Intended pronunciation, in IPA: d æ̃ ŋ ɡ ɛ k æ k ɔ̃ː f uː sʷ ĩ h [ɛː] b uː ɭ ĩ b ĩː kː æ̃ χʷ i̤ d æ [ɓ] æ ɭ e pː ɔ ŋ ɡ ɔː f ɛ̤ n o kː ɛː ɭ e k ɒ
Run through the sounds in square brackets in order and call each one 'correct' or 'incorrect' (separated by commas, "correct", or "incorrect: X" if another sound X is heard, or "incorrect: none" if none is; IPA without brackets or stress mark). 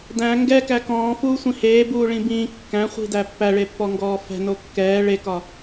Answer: incorrect: eː, incorrect: pː